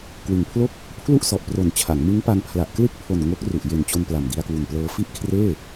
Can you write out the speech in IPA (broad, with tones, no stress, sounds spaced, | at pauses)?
k w ɯ˨˩ ŋ pʰ l o˥˩ k̚ | pʰ l u˥˩ ʔ s ɔ˨˩ ʔ p r o˨˩ n t͡ɕʰ a˩˦ ŋ m ɯ˦˥ ŋ p a˧ ŋ pʰ l a˨˩ ʔ k l ɯ˥˩ k̚ pʰ o˨˩ n ŋ o˦˥ k̚ r u˨˩ ʔ j e˨˩ n t͡ɕ o˧ n p l a˨˩ m d i˧ a̯ k w u˨˩ n p l ɤː˧ f i˥˩ ʔ kʰ r eː˥˩